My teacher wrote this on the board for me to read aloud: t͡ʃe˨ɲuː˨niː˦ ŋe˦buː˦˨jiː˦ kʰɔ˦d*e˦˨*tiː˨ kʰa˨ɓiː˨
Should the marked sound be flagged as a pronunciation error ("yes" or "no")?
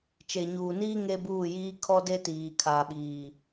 yes